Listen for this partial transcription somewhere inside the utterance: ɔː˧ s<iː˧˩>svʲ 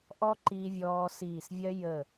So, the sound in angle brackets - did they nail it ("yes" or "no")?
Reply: yes